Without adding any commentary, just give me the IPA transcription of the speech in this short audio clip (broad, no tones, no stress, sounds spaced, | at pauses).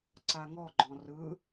ǀ a ŋ ɔ ɡ͡ǃ ɔ̃ r ɯ